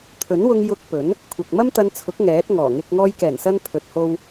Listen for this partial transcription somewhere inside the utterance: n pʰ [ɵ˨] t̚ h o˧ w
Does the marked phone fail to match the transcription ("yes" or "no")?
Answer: no